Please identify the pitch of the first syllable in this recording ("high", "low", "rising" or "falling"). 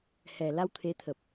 low